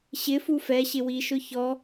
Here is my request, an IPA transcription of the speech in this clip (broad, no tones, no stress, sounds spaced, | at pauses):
ɕ ɪ f u f ɛ ɕ ɪ w i ʃ ʊ ç ɔ